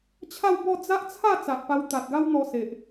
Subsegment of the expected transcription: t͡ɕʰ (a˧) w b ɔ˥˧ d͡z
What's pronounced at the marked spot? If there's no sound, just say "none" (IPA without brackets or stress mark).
a˥˧